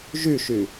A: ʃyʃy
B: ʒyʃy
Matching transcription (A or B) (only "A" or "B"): B